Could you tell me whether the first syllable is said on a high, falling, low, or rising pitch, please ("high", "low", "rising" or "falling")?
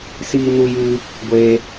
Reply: high